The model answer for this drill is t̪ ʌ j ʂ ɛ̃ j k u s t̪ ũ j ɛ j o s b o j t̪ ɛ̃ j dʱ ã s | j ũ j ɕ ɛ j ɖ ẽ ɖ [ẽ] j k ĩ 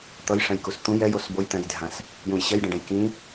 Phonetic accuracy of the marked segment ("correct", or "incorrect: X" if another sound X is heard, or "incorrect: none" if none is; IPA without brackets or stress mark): incorrect: ɛ̃